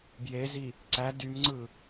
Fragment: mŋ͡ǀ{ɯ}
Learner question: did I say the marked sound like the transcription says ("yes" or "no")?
yes